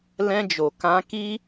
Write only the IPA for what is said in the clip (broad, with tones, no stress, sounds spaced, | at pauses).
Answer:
l ɛ̃˧ d͡ʒ o˨ k ã˧ k i˦